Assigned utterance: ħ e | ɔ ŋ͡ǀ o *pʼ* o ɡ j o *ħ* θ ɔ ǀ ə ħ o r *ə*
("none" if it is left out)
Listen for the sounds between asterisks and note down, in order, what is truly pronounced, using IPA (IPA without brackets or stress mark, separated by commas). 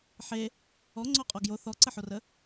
qʼ, none, ə